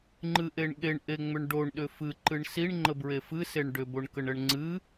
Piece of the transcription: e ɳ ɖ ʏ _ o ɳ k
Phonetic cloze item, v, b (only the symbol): b